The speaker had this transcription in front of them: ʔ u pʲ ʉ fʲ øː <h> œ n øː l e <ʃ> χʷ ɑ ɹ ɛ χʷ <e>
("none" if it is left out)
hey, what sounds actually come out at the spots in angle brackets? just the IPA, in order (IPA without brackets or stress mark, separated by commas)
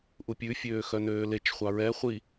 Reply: x, t͡ʃ, i